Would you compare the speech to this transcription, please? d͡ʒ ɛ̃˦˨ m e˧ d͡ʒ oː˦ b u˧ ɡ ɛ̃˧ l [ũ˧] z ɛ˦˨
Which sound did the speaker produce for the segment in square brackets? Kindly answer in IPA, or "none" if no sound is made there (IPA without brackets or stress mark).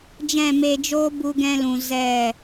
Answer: ũ˨